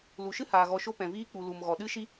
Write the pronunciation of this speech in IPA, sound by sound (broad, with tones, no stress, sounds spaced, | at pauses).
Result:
l u˨ ʃ ɨ˦ h aː˨ ɣ ɔ˨ ʃ o˧ p ɛ̃˨ v iː˧ k͡p u˨ l u˨ m ɣ ɔ˨ ɗ ɨ˦ ʃ i˦